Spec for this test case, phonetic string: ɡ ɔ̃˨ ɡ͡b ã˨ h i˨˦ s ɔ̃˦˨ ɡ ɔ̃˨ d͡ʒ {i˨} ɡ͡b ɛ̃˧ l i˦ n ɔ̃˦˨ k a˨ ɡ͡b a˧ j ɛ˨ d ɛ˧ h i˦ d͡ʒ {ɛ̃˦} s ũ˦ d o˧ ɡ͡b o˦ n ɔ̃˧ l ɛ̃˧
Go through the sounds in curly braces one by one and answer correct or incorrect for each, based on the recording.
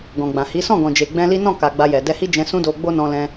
incorrect, incorrect

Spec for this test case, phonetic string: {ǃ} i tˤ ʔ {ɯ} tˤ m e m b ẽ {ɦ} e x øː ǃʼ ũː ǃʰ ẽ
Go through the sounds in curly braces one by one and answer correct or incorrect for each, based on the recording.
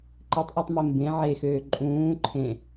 correct, correct, incorrect

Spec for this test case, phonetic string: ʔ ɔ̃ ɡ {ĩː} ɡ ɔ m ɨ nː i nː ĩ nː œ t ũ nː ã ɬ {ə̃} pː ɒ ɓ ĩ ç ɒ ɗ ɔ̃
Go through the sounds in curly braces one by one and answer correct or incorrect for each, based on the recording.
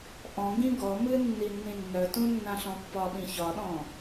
incorrect, incorrect

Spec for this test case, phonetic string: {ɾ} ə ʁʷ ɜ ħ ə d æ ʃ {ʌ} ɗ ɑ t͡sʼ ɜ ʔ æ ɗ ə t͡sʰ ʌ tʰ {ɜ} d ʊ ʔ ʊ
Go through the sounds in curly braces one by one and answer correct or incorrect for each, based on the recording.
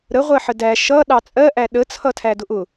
correct, correct, incorrect

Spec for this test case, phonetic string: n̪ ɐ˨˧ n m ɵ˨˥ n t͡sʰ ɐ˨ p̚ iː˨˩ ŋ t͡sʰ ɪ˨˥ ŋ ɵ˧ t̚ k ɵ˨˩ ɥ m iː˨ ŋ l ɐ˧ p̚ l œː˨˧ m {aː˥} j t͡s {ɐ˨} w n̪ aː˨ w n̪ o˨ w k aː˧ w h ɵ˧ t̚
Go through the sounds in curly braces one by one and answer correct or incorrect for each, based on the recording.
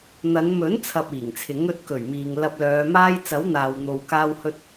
correct, incorrect

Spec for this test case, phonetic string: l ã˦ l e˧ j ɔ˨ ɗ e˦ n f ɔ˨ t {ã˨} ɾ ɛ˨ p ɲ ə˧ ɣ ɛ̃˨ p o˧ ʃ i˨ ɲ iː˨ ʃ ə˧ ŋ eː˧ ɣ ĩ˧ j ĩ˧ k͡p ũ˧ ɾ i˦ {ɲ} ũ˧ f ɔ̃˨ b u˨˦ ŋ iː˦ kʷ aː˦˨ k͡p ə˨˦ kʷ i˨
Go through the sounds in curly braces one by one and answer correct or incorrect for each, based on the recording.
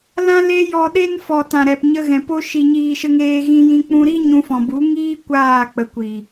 correct, correct

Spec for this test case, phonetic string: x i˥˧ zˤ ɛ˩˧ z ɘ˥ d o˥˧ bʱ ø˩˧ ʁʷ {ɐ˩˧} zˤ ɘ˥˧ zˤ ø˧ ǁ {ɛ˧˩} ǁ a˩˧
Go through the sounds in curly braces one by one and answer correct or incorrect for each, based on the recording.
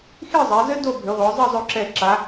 incorrect, correct

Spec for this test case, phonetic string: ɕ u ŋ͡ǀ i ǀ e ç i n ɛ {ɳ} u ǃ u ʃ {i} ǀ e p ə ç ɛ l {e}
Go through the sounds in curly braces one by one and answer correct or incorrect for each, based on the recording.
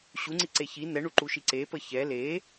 correct, correct, correct

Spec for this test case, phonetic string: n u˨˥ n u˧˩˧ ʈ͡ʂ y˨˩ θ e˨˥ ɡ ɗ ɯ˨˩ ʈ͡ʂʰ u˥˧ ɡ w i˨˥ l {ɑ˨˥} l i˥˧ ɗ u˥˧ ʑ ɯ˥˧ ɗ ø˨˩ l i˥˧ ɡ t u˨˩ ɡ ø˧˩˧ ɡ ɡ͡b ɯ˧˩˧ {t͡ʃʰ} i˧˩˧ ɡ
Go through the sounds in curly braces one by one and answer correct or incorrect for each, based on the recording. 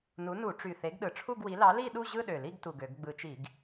correct, incorrect

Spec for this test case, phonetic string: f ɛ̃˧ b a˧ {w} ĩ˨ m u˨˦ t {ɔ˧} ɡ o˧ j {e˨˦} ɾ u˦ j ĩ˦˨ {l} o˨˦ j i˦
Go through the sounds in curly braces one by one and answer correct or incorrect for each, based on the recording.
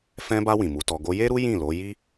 correct, correct, incorrect, correct

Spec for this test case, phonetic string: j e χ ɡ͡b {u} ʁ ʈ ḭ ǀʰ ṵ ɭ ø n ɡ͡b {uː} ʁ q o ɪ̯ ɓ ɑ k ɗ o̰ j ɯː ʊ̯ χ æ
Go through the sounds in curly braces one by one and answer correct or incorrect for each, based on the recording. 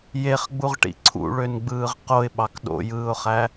correct, incorrect

